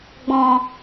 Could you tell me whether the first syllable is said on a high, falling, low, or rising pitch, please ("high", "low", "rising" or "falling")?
low